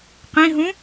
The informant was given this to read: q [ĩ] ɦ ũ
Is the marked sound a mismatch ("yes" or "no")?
no